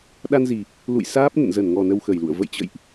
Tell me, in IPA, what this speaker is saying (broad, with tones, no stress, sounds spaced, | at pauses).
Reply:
ɗ a˧ n z i˨˩ | l ṵ˧˨ j s aː˦˥ p̚ n ə̰˧˨ n z ə˧˩ n ŋ ɔ˨˩ n ə˧ w x ə˨˩ j l ṵ˧˨ ə̯ v ə̰˧˨ j t͡ɕ ə̰˧˨ j ʔ